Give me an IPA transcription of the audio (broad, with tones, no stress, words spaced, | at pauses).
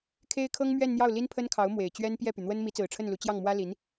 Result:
kʰe˥ɪ̯kʰɤ˥ŋ mɥɛ˥˧nn̪jɑ˥˩ʊ̯ li˥npʰə˥nkʰɑ˧˥ʊ̯ mwe˨˩ɪ̯t͡ɕɥɛ˥n pjɛ˥˩py˩n̪wə˥n mi˧˥t͡sɹ̩˨˩ʈ͡ʂʰə˥˩nlu˧˥ t͡ɕjɑ˥˩ŋmwä˥li˧˥n